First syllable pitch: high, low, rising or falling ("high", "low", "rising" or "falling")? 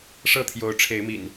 falling